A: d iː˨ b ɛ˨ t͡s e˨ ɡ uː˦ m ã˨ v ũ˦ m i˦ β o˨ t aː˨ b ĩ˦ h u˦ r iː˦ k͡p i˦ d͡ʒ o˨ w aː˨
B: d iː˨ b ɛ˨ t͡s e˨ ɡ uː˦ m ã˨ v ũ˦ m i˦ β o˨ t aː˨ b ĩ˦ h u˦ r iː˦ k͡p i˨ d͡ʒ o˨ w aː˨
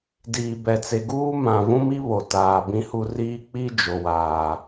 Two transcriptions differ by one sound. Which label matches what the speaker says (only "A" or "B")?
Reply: A